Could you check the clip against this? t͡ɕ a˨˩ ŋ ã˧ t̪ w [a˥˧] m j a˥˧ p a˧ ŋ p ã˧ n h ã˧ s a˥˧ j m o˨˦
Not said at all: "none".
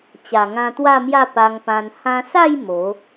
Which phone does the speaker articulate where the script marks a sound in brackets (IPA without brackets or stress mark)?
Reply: a˥˧